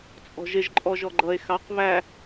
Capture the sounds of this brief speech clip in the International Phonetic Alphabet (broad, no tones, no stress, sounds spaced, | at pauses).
t͡sʼ ɔ̤ ʒ ɪ ʒ ǃʼ ɔ ʒ ɔ ɡ͡ǃ ʌ e̯ x ɑ q β æ